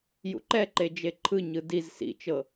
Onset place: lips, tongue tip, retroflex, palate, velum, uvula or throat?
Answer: palate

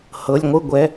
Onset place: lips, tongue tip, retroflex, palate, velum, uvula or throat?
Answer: throat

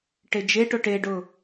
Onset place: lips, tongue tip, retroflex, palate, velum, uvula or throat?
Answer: retroflex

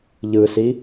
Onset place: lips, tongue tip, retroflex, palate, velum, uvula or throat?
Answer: palate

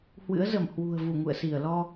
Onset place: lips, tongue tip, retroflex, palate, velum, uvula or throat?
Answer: throat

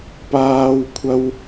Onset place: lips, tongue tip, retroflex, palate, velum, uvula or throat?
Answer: lips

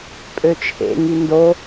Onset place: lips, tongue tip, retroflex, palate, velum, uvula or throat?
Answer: lips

